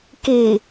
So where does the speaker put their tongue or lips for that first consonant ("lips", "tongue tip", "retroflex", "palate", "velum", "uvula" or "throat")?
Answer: velum